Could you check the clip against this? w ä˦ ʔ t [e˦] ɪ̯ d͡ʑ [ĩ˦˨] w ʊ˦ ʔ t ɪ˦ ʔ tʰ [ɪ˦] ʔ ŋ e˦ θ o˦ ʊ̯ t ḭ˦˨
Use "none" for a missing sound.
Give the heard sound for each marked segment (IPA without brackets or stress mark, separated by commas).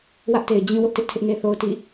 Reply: e˨, ĩ˦, ɪ˦